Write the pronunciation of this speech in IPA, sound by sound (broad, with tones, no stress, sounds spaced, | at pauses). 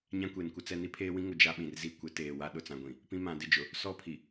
ɲ ã˦ kʷ e˨ n kʷ ɪ˦ t͡s ɛ˦ n i˦ pʰ eː˦ w ĩ˦ ŋ ʊ˨ d͡ʒ a˦ ɓ ĩ˨ r z i˦˨ kʷ ɪ˨˦ t eː˨ w a˦ ɗ ʊ˨ t͡s ã˨ ɡʷ ĩ˨ | p ĩ˦ m ã˨˦ d ɪ˦ d͡ʒ ʊ˨ | s ɔ˦˨ pʰ i˨